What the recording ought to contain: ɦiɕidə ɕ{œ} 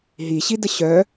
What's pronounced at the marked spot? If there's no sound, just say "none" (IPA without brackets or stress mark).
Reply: œ